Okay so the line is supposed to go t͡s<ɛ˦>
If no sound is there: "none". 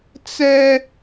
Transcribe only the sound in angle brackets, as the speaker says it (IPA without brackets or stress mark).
ɛ˦